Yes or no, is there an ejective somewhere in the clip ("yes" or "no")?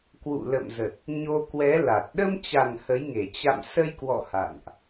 no